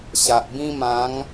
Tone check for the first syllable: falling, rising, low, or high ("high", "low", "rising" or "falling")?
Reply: low